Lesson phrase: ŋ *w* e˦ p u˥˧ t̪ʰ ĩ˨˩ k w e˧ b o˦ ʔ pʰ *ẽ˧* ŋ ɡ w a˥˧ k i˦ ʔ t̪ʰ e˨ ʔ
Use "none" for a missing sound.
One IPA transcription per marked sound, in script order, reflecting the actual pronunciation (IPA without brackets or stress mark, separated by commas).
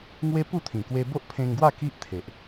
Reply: w, ẽ˧